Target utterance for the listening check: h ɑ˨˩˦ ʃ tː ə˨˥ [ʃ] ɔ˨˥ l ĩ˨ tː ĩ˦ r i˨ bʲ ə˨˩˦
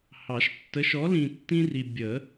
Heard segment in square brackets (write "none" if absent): ʃ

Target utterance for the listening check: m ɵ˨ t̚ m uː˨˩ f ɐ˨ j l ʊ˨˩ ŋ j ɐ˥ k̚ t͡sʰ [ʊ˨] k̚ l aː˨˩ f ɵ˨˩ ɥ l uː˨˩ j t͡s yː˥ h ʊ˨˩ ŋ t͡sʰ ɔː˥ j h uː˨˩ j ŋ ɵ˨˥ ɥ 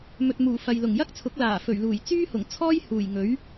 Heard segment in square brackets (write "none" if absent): ʊ˨˥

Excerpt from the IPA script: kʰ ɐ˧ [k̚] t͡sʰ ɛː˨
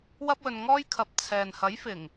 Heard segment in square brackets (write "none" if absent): p̚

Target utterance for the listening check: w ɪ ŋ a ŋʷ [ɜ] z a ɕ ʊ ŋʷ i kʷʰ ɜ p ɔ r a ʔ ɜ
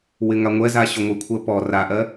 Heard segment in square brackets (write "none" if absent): ɛ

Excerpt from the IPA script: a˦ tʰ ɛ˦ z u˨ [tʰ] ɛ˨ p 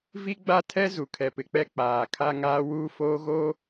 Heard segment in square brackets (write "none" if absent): kʰ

